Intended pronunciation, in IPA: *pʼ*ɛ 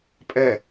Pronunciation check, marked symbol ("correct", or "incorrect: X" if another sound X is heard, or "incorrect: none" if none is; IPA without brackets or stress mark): correct